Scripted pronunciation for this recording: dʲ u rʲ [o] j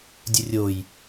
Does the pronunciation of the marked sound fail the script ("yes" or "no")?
no